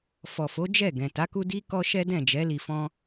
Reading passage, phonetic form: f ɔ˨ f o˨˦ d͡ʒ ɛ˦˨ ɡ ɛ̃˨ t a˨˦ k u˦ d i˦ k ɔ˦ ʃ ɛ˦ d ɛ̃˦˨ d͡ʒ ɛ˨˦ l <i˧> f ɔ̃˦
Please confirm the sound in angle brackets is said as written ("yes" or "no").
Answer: yes